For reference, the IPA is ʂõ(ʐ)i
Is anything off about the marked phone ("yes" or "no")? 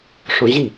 yes